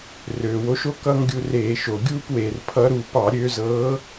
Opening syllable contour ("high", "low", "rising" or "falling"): low